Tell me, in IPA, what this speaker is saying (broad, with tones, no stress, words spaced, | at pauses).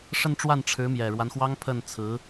ʂə˥˧nʈ͡ʂwa˥˩n ʈ͡ʂʰɻ̩˧˥mjɛ˨˩ɻwa˦nxwɑ˥ŋ pʰə˥˩nt͡sʰɹ̩˧˥